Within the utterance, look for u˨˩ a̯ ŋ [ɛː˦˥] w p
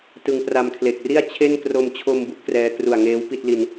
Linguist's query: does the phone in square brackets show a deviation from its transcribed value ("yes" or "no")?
yes